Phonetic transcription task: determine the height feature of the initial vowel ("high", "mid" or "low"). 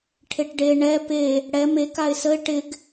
mid